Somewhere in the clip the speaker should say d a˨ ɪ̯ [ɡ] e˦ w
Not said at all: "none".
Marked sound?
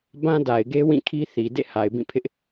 ɡ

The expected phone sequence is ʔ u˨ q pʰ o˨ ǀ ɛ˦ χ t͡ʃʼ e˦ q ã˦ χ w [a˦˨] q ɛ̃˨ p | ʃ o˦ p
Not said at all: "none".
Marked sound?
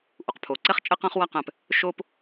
a˦˨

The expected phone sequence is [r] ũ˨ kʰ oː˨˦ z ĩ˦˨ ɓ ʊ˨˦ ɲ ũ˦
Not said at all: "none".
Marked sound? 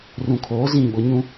r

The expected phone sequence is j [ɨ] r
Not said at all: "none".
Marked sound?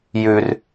ʉ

